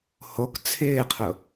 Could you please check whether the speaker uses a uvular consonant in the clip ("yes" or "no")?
yes